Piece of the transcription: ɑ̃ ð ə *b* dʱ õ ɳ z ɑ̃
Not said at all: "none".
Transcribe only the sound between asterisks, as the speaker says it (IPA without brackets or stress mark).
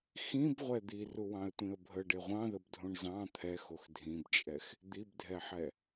b